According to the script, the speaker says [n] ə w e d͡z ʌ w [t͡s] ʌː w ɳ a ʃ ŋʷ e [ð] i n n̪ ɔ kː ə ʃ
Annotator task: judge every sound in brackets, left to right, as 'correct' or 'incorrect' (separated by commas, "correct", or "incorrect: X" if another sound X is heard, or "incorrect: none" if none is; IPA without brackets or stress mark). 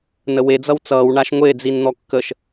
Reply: correct, correct, incorrect: d͡z